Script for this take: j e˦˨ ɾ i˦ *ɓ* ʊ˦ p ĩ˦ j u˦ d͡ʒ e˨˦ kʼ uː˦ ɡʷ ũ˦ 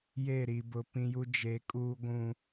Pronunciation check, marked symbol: incorrect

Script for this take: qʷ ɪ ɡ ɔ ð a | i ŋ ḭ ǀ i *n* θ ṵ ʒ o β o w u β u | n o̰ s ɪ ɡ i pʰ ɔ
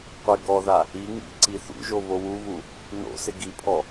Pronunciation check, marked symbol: incorrect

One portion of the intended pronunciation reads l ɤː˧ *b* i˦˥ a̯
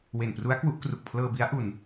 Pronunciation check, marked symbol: correct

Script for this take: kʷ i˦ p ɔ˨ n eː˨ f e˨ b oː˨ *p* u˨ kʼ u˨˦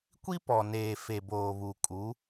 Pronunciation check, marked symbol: incorrect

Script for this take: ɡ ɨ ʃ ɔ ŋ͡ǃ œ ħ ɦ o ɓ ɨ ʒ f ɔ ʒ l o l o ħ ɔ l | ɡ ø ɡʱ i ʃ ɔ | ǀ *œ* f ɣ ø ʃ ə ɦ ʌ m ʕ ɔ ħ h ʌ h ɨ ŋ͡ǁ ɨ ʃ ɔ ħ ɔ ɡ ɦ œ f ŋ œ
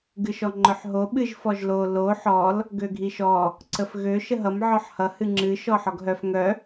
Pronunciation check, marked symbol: incorrect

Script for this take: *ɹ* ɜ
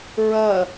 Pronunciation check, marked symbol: correct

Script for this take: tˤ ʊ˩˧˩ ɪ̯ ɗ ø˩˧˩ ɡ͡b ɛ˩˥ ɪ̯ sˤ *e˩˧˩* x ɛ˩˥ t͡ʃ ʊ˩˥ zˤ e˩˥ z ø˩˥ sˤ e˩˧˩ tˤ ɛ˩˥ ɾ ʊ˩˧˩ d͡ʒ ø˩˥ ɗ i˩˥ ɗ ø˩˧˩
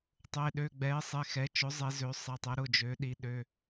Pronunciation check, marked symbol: correct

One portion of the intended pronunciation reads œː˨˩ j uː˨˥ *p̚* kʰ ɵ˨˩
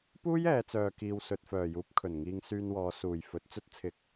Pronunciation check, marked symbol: correct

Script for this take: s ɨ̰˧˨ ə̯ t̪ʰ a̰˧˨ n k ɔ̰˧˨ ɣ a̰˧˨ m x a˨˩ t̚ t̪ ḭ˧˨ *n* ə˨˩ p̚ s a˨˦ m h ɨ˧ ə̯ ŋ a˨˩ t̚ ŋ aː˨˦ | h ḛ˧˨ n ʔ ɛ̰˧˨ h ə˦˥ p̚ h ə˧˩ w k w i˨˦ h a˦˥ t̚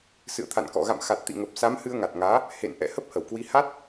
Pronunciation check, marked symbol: incorrect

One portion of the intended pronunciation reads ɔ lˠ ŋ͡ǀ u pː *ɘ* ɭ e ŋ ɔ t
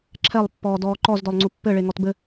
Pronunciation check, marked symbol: correct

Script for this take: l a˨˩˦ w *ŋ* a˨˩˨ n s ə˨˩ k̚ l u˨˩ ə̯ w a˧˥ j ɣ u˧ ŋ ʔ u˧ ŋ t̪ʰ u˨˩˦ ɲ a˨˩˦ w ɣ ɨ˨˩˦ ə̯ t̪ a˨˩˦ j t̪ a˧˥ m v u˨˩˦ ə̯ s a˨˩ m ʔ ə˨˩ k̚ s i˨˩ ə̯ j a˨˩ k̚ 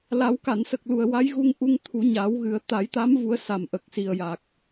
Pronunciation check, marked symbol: incorrect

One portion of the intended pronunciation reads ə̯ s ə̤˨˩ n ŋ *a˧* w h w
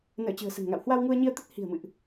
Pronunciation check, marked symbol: incorrect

